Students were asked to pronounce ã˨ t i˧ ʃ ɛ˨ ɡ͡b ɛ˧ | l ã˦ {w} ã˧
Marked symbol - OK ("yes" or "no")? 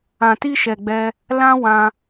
yes